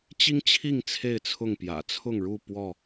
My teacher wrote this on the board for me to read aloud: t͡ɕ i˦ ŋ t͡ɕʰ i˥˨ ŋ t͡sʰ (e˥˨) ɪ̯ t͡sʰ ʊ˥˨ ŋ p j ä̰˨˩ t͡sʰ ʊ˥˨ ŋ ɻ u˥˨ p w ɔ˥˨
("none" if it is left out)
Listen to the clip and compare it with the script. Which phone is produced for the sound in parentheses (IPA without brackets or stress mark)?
e˥˨